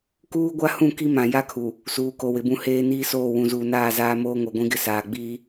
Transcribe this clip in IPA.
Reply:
k uː˦ ɡʷ a˦ h ũ˦˨ k i˦ m ã˨ j a˦ kʰ u˨ | s uː˨ k o˨ w ɪ˨˦ b ũ˦ h eː˦ n iː˦ s oː˦˨ w ũ˨ z uː˨ n aː˦˨ z aː˦ m oː˦ ŋ o˨ ɡʷ ĩ˦ ɡ ɪ˦ s aː˨ ɡ͡b iː˦

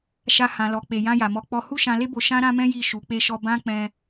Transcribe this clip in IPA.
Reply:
ʃ a˧ h ã˨ l ɔ˨ k͡p e˨ j ã˧ j a˨ m ɔ˨˦ k͡p ɔ˧ h u˦ ʃ ã˧ l e˦ b o˧ ʃ ã˦ ɾ ã˦ m ɛ̃˦ j i˦˨ ʃ u˨˦ k͡p e˦ ʃ ɔ˦ b ã˦ k͡p ɛ̃˦

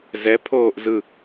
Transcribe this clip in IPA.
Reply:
z ɛ pʰ oː ʔ z ɯ

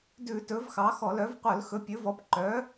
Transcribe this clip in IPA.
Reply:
d ʉ˧˩˧ t ɵ˨˥ v x ɑ˨˥ x ɔ˧˩˧ l œ˨˥ v qʷ œ˧˩˧ l x ɵ˨˥ pʲ ɵ˨˥ v ɔ˨˥ p ǃ œ˨˥

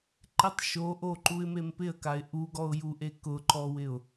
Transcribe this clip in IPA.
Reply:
ǃ ɪ tˤ ʃ o ʔ o ǃ u ɪ̯ m e m p ɪ ə̯ k a ɪ̯ ʔ u ɡ ɔ ʊ̯ j u ʔ e k ʊ ǃ ɔ w ɪ ʊ̯

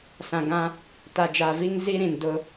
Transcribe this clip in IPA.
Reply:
s ã˨ ɡ ã˦ | t a˨ d͡ʒ a˨ v i˦ ŋ z i˦ ɾ ĩ˨ n d ʊ˦

